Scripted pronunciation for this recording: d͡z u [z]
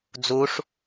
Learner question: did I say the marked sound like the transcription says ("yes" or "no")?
no